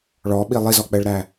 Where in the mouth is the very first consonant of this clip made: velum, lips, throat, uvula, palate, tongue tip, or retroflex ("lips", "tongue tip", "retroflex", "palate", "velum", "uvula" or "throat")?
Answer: retroflex